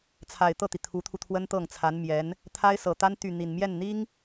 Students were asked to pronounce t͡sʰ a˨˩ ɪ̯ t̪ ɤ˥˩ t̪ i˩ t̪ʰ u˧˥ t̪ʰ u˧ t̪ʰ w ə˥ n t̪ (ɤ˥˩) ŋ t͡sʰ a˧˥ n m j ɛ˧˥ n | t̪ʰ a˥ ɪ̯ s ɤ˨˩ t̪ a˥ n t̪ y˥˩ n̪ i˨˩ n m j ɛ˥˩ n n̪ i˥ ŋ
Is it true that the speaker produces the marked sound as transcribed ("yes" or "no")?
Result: yes